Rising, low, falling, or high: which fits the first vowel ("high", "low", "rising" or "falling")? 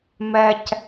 low